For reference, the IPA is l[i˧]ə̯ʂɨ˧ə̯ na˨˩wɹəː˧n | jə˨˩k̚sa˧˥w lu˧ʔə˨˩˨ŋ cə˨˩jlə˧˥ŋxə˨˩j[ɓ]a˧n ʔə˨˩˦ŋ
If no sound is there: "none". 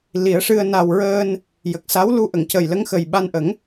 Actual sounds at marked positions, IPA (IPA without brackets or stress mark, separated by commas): i˨˩˦, ɓ